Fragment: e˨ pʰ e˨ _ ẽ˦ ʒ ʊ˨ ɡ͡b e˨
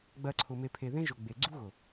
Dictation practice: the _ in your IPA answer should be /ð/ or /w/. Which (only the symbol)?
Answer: ð